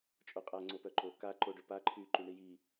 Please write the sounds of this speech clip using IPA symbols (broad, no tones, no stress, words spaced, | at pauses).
t͡ʃʼoqʼa ŋ͡ǀopœǃo ka ǃo ɖøpa ǃʰy ǃyɳiji